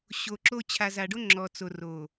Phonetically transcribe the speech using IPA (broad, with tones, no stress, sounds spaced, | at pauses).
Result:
ɕ o˨ ǁ o˦ t͡ɕʰ a˨ z a˨ ɖ o˦ ŋ͡ǁ ɔ˨ t͡s o˨ r o˨